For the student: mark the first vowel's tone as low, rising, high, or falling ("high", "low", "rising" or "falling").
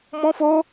high